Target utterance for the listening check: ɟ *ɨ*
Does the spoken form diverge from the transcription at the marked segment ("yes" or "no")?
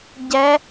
yes